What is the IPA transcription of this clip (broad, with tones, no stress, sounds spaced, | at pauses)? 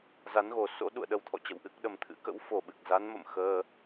z a˨˦ n ɣ o˧˩ s o̰˧˥ ɗ ṵ˧˨ ə̯ ɗ ə˧ w t̪ʰ ɔ̰˧˨ t͡ɕ ə̰˧˨ w ʔ ɨ˦˥ k̚ ɗ ə˨˩ m t̪ʰ ɨ̰˧˥ k ə̰˧˥ w f o˨˩ ɓ ɨ˨˩ k̚ z a˨˦ n m ə̰˧˨ m x əː˧